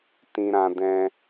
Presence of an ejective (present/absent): absent